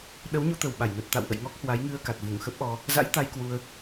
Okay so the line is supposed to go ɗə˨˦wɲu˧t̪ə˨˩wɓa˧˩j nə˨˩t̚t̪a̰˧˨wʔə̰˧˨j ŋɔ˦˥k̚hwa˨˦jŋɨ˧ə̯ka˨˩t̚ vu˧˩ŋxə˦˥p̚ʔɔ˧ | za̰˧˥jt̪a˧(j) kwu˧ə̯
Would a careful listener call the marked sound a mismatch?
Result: no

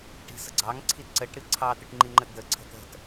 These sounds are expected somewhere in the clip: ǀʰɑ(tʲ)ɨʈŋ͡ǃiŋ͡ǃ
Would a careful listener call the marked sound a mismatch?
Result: yes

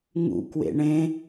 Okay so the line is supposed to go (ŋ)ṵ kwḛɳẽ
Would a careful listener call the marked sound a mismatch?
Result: no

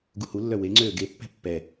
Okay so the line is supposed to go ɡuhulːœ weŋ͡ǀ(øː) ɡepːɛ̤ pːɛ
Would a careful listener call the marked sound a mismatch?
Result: no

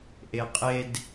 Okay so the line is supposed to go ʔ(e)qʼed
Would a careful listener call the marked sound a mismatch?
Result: no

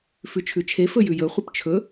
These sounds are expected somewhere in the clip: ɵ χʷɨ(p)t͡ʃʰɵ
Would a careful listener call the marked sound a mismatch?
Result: no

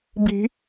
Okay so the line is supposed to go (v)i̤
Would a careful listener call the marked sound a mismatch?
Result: yes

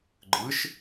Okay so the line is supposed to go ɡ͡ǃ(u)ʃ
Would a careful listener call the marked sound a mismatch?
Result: yes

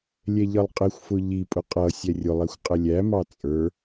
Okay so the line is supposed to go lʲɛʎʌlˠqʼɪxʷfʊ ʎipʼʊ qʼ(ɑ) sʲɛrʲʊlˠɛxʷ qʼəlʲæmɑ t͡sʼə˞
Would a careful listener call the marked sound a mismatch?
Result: yes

